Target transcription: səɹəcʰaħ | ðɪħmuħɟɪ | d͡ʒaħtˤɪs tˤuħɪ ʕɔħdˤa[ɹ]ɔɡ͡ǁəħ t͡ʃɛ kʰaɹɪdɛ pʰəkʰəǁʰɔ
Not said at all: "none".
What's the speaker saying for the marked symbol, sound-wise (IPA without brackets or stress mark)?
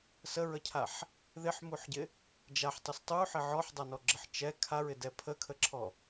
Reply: n